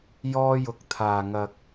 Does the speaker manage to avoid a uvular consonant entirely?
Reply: yes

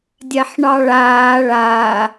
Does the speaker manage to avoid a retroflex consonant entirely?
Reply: no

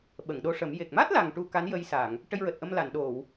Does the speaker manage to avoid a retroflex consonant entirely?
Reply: no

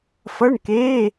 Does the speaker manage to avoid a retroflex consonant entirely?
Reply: no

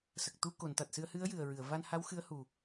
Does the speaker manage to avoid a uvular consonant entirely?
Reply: yes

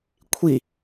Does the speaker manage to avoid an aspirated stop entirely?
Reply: no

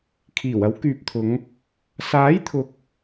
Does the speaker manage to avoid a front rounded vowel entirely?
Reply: no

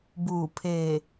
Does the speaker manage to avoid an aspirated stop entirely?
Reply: no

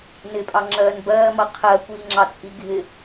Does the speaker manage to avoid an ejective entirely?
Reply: no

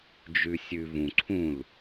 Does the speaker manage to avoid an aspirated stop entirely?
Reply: no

